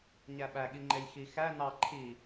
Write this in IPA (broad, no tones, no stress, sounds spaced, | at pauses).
ɲ æ ɓ æ ɠ i ŋ͡ǃ e j x i x æ n ɑ ǃʰ i